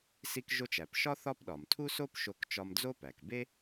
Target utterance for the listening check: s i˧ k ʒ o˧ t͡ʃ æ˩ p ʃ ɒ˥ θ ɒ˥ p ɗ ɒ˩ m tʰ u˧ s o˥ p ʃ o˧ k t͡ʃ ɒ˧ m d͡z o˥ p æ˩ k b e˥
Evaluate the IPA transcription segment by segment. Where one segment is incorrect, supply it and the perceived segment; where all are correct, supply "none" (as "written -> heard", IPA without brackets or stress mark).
u˧ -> u˥